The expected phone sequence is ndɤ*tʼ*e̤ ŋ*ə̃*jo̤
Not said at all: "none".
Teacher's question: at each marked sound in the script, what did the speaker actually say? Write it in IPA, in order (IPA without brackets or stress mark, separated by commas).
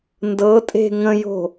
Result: tʼ, ə̃